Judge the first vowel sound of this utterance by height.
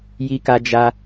high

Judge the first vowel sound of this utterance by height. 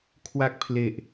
low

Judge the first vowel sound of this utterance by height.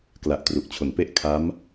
low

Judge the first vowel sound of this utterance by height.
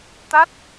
low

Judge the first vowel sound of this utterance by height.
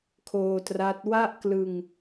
mid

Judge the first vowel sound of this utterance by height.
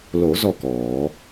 mid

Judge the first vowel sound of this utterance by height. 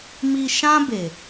high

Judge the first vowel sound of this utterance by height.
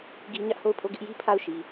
high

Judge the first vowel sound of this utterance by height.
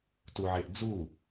high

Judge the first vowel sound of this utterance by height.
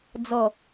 mid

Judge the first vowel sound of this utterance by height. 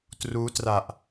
high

